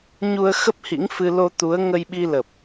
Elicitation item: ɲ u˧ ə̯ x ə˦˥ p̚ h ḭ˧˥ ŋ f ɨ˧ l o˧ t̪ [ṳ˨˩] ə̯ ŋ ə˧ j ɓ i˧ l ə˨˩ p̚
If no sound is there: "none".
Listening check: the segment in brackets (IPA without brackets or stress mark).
u˨˦